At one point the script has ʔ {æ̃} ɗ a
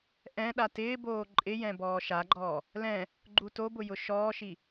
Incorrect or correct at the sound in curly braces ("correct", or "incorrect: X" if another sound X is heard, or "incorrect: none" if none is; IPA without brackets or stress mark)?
incorrect: ɛ̃